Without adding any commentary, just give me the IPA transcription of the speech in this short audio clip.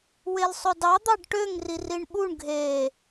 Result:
w e l sˤ ɵ d ɑ d̪ ɑ ɖ ʈ ø ŋ r i r i ɳ ɓ u ɳ ɡʱ e

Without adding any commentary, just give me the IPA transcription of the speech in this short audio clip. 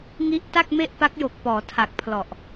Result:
ŋ i˦˥ ʔ t a˥˩ k̚ m e˥˩ ʔ p a˦˥ k̚ j o˨˩ k̚ p ɔː˩˦ tʰ a˨˩ k̚ pʰ l ɔ˨˩ ʔ

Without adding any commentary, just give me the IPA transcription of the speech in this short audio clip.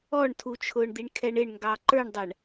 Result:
ɔ ɳ tʰ u t͡ʃʰ ʊː ɳ d̪ i ɳ kʰ ɛ ɳ ɪ ɳ ŋ ɡ ɑ ǃ ə˞ ɳ dˤ æ ɳ

